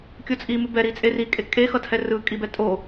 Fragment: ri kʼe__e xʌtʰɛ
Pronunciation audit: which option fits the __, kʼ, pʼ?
kʼ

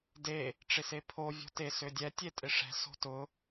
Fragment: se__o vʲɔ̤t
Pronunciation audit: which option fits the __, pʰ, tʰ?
pʰ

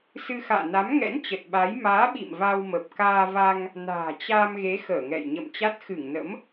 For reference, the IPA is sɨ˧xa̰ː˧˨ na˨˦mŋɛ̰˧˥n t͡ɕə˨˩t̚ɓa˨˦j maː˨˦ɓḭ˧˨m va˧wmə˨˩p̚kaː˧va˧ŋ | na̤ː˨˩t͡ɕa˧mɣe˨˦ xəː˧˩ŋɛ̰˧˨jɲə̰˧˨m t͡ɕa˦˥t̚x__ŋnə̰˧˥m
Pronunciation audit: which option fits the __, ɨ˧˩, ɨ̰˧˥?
ɨ˧˩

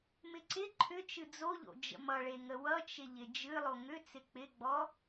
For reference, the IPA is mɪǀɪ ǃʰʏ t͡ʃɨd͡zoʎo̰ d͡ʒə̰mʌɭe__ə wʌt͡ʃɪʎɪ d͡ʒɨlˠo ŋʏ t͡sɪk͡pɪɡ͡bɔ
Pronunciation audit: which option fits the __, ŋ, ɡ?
ŋ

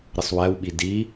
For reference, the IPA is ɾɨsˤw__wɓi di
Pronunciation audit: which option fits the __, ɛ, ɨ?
ɛ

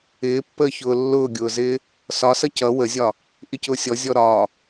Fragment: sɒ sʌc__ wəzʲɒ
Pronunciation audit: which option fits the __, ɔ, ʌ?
ʌ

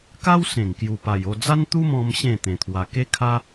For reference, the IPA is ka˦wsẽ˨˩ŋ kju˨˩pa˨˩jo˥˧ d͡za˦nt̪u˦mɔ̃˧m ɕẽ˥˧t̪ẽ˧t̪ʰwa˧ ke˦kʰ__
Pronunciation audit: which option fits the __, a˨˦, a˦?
a˦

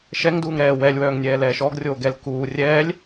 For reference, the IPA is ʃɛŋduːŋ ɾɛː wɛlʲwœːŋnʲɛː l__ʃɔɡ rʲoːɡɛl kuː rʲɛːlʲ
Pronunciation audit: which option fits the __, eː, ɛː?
ɛː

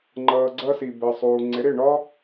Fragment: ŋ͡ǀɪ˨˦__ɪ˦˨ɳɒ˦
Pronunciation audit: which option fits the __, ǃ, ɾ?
ɾ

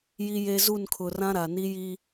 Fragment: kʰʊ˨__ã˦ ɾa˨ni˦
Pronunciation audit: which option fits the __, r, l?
r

